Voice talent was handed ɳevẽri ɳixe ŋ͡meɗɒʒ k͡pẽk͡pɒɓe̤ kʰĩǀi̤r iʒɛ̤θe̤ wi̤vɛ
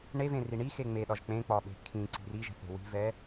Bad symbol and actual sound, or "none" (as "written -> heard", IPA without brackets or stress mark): none